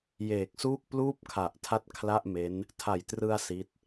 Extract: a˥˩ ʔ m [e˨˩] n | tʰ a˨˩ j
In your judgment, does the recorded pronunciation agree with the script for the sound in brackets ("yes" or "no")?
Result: no